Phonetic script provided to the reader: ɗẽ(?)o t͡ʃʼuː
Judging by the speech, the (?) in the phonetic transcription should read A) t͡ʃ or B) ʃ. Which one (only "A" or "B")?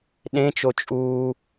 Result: A